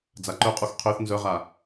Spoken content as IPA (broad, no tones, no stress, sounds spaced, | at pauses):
d͡z a ǃ œ qʼ u x qʰ ø θ n z œ ʁ a